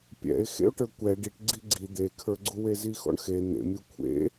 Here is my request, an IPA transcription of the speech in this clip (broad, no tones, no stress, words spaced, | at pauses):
pʲɛ̰e̯ xḛo̯ʈə˞kʷɛ ɖiʈɡ͡ǀi ɡ͡ǀi d̪ekʰə˞ɡ͡ǀuwe zixɔ̰ɳxe n̪ḛmʲu kʷʰḛ